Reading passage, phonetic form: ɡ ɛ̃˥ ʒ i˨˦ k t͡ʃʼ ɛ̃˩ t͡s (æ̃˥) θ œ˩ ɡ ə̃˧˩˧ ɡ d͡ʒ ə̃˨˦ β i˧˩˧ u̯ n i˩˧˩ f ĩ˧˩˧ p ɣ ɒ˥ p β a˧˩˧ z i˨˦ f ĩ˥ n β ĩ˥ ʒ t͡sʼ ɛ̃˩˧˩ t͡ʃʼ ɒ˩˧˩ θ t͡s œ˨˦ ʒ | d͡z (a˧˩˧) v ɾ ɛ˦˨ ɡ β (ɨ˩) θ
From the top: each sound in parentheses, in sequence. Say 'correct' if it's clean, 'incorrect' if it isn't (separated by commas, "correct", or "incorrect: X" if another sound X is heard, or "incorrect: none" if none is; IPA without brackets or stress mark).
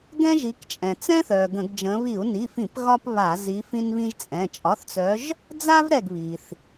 incorrect: ɛ̃˥, incorrect: a˥, incorrect: i˩